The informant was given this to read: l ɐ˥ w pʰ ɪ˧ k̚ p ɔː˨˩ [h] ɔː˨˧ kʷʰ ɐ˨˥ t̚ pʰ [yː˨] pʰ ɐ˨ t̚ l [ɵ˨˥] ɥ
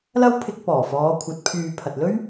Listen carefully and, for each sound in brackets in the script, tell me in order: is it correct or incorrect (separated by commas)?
incorrect, correct, incorrect